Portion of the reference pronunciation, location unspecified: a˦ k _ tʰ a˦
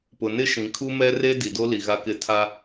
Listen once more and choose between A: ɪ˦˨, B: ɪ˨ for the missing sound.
A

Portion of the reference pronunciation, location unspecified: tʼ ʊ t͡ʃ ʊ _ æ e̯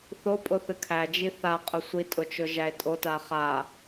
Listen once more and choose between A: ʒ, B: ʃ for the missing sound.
A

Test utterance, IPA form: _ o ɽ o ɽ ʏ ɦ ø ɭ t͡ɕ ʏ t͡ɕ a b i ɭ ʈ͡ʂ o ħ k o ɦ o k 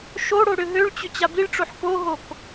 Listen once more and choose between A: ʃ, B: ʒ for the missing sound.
A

